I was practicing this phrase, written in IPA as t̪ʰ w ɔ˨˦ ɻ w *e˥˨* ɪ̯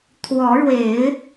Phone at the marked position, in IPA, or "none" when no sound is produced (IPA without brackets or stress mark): e˨˦